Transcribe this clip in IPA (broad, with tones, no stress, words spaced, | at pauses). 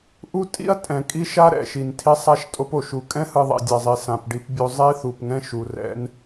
ʔu˦ tʼḭ˦ɐ̯ tʼɛ̃˨kʼi˦ʃa˦ ɾɛ̰˨ʃi˨ntʰi˦ sˤa˦ʃtʼo˦po˨ ʃu˨kʼɛ̃˦hɯ˨ ðˤḭ˨dʲa˨zˤi˨ sã˨pɖi˦pbʲo˦ zˤi˦θu˨pŋɛ̃˦ ʃu˨rɛ̰˦n